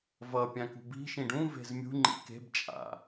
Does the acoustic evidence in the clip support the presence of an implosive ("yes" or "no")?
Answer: no